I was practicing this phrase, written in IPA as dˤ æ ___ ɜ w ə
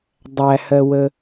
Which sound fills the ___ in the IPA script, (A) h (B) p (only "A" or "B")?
A